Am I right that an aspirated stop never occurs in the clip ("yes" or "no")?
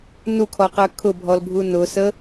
no